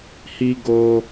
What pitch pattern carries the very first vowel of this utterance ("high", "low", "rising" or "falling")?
high